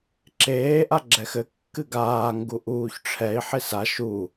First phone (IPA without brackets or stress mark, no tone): ǁ